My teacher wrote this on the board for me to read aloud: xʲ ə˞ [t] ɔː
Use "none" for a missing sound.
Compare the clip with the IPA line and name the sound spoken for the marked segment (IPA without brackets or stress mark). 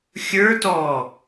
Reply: t